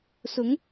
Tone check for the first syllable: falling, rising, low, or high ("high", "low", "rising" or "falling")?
rising